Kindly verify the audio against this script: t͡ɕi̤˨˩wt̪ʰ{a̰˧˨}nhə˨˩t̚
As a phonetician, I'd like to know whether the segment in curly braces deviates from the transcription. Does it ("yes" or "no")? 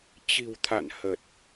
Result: no